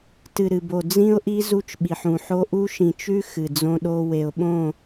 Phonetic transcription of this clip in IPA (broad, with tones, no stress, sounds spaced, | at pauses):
t ɨ˨ ɾ ɨ˨ b o˨ d͡z ĩ˦ ʊ̯ ʔ i˦ z u˦ t͡ʃ ɓ i˨ ħ ũ˨ ħ o˦ ʔ u˦ ʃ ĩ˨ t͡ʃ ʉ˦ x ɨ˨ d͡z õ˦ ɗ o˦ w e˨ ʊ̯ ɓ õ˦˨